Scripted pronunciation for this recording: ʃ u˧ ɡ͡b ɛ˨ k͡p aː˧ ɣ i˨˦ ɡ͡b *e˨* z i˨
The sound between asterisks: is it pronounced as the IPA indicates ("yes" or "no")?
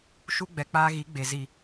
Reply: yes